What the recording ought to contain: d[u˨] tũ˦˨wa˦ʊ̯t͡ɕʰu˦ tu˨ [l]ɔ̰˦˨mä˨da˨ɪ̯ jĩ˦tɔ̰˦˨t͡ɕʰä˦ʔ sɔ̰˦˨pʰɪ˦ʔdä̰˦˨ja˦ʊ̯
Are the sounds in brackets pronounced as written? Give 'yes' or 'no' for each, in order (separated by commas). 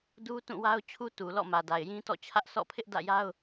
no, yes